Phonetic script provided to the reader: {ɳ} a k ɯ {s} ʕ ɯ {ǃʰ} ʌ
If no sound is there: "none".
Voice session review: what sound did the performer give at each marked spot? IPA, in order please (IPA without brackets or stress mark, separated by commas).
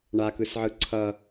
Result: ɳ, s, ǀʰ